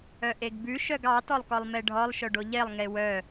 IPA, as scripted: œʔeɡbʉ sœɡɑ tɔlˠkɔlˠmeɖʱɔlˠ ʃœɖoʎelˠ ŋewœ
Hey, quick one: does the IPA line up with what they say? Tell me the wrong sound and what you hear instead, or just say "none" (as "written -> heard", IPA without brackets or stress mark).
s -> ʃ